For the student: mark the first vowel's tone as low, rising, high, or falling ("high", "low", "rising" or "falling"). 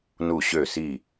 falling